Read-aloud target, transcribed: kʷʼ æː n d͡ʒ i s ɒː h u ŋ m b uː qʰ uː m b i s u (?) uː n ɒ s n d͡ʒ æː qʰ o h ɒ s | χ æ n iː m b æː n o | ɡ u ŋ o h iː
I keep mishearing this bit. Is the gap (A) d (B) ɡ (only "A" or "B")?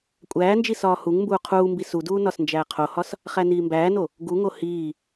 A